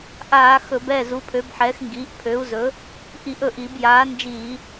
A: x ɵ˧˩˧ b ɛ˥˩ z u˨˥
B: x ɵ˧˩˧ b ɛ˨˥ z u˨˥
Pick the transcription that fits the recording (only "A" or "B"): A